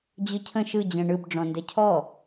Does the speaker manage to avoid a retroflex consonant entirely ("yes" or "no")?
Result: no